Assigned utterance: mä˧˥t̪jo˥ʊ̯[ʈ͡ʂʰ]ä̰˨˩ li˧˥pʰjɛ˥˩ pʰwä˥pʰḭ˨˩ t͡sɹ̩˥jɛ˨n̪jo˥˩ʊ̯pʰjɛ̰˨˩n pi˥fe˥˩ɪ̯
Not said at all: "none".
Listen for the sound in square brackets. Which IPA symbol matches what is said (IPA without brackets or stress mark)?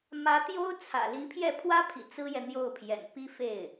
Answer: t͡sʰ